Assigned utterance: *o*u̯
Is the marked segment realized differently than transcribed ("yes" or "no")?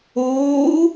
yes